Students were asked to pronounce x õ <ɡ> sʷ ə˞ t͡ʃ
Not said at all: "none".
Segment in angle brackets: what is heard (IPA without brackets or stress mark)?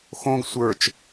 ɡ